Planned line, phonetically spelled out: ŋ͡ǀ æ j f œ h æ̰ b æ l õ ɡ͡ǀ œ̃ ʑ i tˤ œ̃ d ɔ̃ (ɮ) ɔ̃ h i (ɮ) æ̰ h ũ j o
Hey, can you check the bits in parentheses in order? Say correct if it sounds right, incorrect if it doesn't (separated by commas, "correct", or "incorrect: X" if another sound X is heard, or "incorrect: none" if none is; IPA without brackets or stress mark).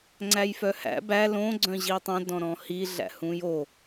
incorrect: ɾ, correct